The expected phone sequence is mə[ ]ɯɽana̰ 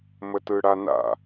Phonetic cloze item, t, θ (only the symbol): t